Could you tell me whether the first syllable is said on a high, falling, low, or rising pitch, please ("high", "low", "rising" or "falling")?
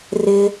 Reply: high